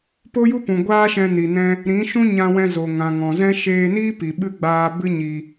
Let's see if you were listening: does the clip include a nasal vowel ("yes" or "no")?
yes